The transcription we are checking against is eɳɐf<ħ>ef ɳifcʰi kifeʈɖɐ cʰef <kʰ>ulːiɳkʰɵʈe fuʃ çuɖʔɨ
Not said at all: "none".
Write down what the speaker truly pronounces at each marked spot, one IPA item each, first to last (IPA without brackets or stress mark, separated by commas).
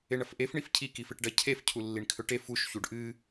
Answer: ʔ, cʰ